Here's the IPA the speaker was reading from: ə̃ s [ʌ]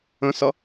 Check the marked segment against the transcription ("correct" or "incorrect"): correct